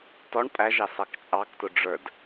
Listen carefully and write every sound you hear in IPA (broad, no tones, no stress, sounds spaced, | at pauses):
t ɔ ɳ pʼ æ ʒ ɑ s ɑ k t͡ʃʼ ɑ k t ʊ ɖ͡ʐ ə˞ d